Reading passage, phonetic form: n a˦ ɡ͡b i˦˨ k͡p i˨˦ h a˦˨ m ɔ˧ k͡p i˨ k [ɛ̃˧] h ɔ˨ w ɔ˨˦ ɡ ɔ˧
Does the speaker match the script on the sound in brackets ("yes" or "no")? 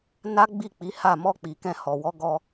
yes